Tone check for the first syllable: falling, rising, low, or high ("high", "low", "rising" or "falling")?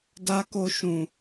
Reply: high